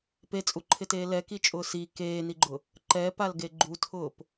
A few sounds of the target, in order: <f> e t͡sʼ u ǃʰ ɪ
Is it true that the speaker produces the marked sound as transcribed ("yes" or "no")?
no